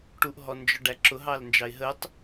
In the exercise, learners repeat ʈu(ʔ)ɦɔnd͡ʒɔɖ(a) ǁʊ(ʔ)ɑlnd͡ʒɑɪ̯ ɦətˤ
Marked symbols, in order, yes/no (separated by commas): yes, no, no